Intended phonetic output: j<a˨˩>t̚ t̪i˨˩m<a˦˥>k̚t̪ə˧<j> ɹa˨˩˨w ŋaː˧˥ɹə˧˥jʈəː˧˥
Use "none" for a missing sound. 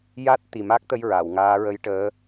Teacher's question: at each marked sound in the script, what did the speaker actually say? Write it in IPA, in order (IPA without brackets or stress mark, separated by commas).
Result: a˦˥, a˦˥, j